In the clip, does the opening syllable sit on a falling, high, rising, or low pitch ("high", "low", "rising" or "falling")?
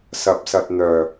low